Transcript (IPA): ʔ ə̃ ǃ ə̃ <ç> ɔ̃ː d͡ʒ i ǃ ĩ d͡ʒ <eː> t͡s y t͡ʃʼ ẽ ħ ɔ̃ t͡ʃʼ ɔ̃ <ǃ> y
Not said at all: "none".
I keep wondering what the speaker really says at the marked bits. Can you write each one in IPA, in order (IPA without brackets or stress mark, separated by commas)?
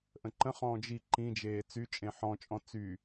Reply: χ, eː, t͡s